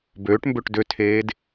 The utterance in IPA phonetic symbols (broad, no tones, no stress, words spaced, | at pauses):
bøːʈmbøʈ døtʰeːd